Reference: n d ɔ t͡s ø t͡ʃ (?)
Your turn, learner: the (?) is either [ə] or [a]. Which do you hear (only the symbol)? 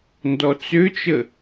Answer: ə